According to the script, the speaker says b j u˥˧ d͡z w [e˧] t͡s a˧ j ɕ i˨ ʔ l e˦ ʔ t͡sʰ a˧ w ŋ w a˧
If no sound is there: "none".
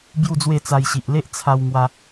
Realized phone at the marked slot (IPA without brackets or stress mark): e˥˧